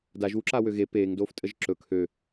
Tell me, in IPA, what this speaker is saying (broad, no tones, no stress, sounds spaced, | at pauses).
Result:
d a ʒ w u ǁ a w ø ɣ e p eː ŋ d oː f tʼ ə ʒ ǁ ɵ kʰ ø